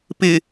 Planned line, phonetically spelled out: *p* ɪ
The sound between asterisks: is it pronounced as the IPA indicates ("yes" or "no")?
yes